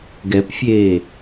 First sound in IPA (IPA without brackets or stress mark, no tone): ɡ